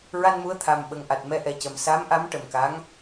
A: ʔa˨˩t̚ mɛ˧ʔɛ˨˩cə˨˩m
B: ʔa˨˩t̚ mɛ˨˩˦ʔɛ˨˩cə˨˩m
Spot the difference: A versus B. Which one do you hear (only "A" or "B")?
A